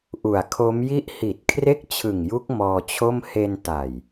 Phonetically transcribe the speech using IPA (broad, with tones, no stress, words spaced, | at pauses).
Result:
ʔu˨˩a̯kʰo˦˥m ji˦˥ʔhi˨˩t̚ kʰre˥˩k̚t͡ɕʰɯ˨˩ŋju˦˥k̚ mɔː˧t͡ɕʰo˥˩m he˧nta˨˩j